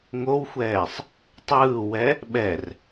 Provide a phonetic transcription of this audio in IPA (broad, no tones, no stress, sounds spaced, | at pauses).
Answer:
ŋ o w xʷ ɛː sˤ | tˤ ɯː w ɛ | ɓ ɛ r